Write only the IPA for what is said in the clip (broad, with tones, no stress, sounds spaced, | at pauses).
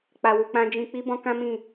k͡p a˧ w u˧ k͡p ã˦ d͡ʒ ĩ˧ k͡p i˦ b ɔ̃˦ k ã˦ m ĩ˦˨